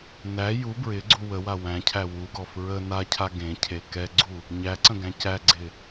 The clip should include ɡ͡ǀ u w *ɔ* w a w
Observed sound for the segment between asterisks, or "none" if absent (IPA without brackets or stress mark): ə